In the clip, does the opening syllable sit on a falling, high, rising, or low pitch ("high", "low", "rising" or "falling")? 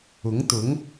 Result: rising